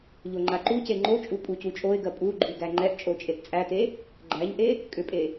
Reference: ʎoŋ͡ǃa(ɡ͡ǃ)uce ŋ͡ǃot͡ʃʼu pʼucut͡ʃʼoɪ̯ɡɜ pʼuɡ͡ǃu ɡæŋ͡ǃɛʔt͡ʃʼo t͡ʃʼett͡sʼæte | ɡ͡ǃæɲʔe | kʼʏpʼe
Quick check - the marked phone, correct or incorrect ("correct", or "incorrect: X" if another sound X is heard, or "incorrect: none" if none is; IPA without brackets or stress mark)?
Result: incorrect: ǃ